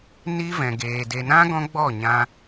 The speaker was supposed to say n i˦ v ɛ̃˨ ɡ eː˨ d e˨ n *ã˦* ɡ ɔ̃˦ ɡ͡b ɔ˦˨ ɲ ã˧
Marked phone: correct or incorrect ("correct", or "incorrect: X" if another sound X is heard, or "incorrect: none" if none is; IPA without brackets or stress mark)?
correct